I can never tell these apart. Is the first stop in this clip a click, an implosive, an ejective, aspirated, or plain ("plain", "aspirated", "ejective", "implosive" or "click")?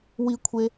aspirated